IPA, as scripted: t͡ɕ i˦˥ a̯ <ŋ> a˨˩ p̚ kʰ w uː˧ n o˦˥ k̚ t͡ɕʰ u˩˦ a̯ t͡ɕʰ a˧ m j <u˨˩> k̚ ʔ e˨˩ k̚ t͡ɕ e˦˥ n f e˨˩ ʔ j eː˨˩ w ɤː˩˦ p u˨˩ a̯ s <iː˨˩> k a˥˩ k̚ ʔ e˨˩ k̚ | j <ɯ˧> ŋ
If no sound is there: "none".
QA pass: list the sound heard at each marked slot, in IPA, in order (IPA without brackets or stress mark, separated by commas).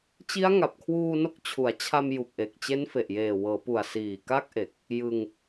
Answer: ŋ, u˨˩, iː˨˩, ɯ˧